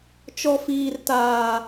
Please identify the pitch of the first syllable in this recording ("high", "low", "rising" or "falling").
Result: low